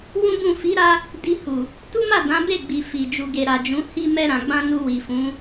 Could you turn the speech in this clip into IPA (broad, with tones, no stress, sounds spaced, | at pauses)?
w ũ˦ b ũ˦˨ f i˨˦ ɾ a˧ | d i˧ h u˨ | t u˦ m a˦˨ d ã˨˦ b e˦˨ ɡ͡b i˨ f i˨ d͡ʒ u˨ ɡ e˨ ɾ a˨ d͡ʒ ũ˨˦ h i˦ m ɛ˧ ɾ ã˨ ɡ͡b ã˧ n u˧ w i˨ f ũ˨˦